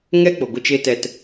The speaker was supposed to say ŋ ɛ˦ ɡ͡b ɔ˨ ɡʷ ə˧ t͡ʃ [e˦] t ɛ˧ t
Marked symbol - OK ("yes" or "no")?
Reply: yes